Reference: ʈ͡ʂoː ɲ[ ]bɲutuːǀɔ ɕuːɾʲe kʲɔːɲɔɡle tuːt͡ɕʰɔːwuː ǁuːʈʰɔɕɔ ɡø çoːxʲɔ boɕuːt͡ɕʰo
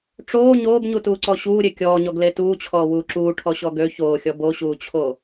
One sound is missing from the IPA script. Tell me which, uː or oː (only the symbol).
oː